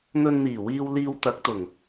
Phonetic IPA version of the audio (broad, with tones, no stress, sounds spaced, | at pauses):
n̪ ɵ˧ n n̪ iː˨˩ w iː˧ w l iː˧ w t̪ ɐ˨˥ k̚ t̪ ʊ˨˩ ŋ